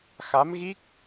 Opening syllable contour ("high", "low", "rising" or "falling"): rising